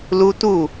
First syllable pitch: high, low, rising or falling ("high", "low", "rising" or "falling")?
high